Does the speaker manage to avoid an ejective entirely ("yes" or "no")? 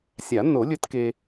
yes